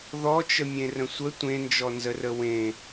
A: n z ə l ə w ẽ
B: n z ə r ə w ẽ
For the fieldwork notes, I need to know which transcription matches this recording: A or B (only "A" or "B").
B